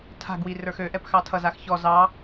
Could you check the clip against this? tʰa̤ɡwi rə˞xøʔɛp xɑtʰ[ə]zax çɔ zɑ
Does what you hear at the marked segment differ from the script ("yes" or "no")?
yes